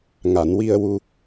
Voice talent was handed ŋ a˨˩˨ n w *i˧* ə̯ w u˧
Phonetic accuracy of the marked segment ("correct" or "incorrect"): correct